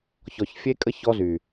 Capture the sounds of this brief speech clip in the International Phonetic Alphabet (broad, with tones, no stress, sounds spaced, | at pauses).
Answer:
ç ɔ˨ ç fʲ e˦ kʼ ə˦ ç ɔ˦ z y˨